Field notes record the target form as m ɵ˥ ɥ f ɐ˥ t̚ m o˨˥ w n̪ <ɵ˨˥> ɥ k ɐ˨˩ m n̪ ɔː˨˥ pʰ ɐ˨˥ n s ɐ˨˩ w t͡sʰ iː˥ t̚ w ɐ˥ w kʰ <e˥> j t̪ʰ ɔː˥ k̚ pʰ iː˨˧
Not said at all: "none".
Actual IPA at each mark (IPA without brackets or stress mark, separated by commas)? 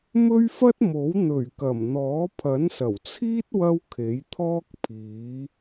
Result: ɵ˨˩, e˨˥